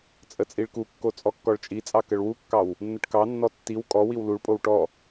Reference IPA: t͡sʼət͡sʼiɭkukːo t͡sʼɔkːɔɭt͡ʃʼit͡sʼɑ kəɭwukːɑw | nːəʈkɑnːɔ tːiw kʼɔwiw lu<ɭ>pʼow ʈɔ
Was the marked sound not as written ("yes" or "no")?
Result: no